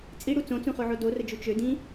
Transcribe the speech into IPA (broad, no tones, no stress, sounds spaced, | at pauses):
t͡sʼ i ɽ u t͡s õ t͡s ũ χ o ʕ o d o r ə d͡ʒ u t͡ʃ ø d ĩ